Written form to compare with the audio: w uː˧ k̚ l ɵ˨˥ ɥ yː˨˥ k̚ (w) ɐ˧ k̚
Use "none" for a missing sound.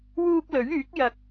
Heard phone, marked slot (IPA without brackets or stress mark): j